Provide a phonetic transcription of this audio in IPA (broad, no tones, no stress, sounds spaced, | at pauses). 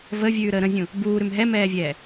v ə vʲ ʉː ɾ əː ɾ ə̃ zʲ ũ | b uː ɾ ʉ m ɦ ɛ m ɛː vʲ ɛː